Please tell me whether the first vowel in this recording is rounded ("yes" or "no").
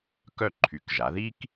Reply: yes